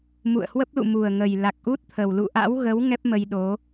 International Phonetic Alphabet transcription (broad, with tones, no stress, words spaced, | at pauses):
mṵ˧˨ə̯hwə˦˥p̚lṵ˧˨ mu˨˩ə̯ŋə˨˩j la˨˩k̚ʔu˦˥t̚t̪ʰə˨˩w lṵ˧˨ʔa̰˧˥wɣə˨˦w ŋɛ˦˥p̚mə˧jɗo˨˦